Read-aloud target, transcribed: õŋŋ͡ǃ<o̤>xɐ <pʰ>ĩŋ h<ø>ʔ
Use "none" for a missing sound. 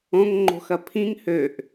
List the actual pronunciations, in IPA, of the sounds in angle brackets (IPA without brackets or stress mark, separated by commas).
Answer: o̤, pʰ, ø